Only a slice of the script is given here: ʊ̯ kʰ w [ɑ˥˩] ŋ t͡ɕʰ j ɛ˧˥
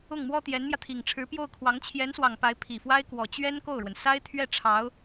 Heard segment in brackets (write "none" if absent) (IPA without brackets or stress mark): ɑ˧˥